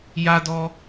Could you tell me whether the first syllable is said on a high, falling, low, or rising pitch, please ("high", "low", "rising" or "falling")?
high